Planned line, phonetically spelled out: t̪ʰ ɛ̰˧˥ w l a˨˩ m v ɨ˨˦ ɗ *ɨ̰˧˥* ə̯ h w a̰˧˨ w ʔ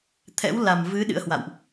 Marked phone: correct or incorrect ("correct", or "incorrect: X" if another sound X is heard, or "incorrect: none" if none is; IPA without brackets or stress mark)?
correct